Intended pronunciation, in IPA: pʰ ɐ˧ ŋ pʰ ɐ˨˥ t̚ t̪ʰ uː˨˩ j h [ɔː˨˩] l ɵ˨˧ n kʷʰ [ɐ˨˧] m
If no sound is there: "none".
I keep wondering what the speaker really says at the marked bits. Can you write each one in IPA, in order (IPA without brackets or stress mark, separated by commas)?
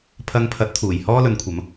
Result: ɔː˥, ɐ˨˧